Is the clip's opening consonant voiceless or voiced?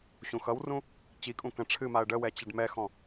voiceless